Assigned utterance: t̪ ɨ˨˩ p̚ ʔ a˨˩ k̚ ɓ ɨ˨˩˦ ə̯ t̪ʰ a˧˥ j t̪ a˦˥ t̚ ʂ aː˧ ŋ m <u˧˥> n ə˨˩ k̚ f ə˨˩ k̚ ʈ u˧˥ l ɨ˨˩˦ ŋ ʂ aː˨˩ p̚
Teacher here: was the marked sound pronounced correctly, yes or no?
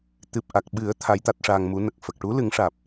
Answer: yes